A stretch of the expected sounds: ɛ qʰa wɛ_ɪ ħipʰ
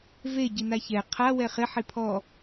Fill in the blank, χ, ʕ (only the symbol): χ